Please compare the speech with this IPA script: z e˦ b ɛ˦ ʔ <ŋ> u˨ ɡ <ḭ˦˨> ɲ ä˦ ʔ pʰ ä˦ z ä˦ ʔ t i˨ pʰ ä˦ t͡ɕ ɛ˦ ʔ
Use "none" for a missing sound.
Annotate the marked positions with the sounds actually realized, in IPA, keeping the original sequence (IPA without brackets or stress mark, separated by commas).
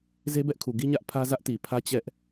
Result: kʰ, i˦